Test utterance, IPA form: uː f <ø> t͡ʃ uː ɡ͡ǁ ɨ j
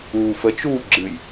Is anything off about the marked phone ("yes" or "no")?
yes